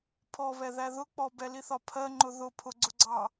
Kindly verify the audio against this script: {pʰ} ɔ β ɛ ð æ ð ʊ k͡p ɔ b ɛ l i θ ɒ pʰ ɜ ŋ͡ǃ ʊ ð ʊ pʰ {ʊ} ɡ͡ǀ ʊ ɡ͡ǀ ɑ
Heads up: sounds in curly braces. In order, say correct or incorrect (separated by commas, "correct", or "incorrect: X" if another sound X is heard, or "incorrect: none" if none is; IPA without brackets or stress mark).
correct, correct